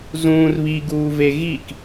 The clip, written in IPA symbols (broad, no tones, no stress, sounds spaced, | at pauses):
z ũː r β i ɡ uː v e ɣ i k